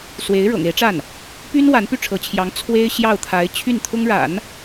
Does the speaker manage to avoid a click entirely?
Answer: yes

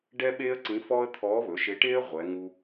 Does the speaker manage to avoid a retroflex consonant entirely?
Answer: no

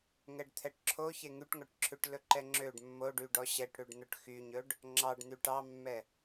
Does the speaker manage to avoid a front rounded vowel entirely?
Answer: no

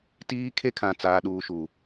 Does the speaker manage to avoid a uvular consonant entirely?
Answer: yes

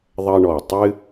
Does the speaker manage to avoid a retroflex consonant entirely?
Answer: no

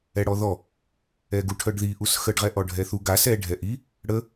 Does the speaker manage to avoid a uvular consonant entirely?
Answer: no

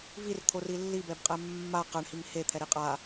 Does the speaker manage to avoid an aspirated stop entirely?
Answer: no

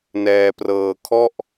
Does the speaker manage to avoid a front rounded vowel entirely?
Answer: yes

